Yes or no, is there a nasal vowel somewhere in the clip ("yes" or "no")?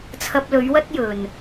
no